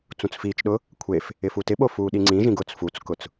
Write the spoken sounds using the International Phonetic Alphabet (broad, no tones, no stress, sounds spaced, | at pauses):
t͡s ũ t͡s f iː t͡ʃ ɗ ʊ | kʷʰ e f | ɪ f u t ɪ ɓ o f uː ɗ i ŋ͡ǀ ĩ ʒ ĩ ɡ ʊ t͡s f u t͡s k ʊ t͡s